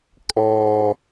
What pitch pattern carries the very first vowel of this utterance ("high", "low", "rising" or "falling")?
high